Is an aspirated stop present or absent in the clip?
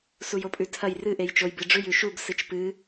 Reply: present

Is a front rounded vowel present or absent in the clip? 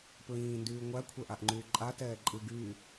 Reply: present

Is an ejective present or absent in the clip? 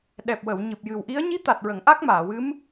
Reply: absent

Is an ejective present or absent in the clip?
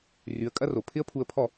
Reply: present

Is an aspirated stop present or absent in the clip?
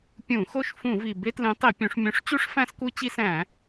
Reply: absent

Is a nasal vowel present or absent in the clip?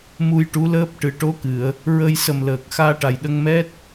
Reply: absent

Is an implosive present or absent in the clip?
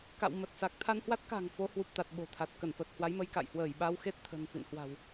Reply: present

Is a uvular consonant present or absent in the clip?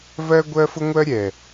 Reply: absent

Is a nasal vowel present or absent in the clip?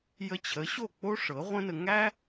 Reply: present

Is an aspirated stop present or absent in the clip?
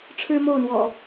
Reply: present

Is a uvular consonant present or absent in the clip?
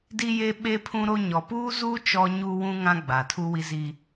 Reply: absent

